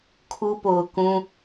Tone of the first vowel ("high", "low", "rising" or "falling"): high